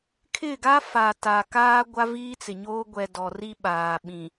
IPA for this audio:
kʰ ɪ˦˨ ɡ a˦ f a˨ t a˨ k aː˦ ɡʷ a˦ v iː˦ t͡s ɪ˨ ɲ oː˦ ɡʷ ɛ˨ d ɔ˨ r i˦ ɓ aː˨ ɓ ĩ˨

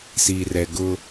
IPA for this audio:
s i˨ r ɛ˨ ɡ ʊ˦

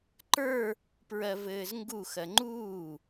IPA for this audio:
ǃ ə˞ | p ɹ ɜ v ɘː z ŋ ɡ u x ɜ ŋ͡ǃ uː

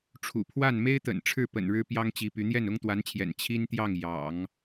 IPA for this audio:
ʈ͡ʂʰ ṵ˨˩ pʰ w a˥˩ n m e˥ ɪ̯ t̪ ə̰˨˩ n ʈ͡ʂʰ ɻ̩˥˩ p ə̰˨˩ n ɻ ɻ̩˥ p j ɑ˥ ŋ t͡ɕ i˧˥ p y˧˥ n̪ j ɛ˥˩ n ʊ˥ ŋ t̪ w a˧˥ n t͡ɕʰ j ɛ̰˨˩ n t͡ɕʰ i˥ n t̪ j ɑ˥˩ ŋ j ɑ̰˨˩˦ ŋ

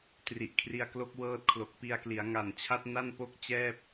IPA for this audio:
t r i˨˩ ʔ kʰ r i˧ a̯ k l o˦˥ k̚ w ɤː˦˥ t̚ kʰ l o˨˩ k̚ p i˧ a̯ k l i˩˦ a̯ ŋ a˨˩ n t͡ɕʰ a˦˥ t̚ n a˥˩ n p o˥˩ k̚ t͡ɕ ɛː˥˩ p̚

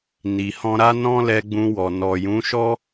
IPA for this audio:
n i˨ h ɔ̃˧ ɾ a˦ n ɔ̃˦ l ɛ˧ ɡ͡b ũ˧ w ɔ˨ n ɔ˨ j ũ˨˦ ʃ ɔ˦

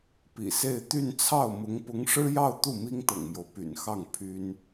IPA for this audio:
p ḭ˨˩ s e˥˧ ɪ̯ t̪ y˥˧ n t͡sʰ ɑ˥˩ ʊ̯ m ʊ˧˥ ŋ p ʊ˧˥ ŋ ʂ ɻ̩˥ j ɑ˥˧ ʊ̯ t̪ u˥˩ m i˥ ŋ t̪ ɤ̰˨˩ ŋ m j o˦ ʊ̯ p y̰˨˩ n x ɑ˥˩ ŋ pʰ y˥ n

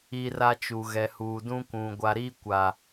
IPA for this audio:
i˦ r a˦ t͡ʃ u˨ ɣ ɛ˨ h uː˨ d ũ˦ kʷ ũ˨ ɡʷ a˨ ɾ iː˦ kʷ a˨

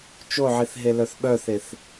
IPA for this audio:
t͡ʃ o ʕ i θ ɦ e l œ θ ɓ œ θ e θ

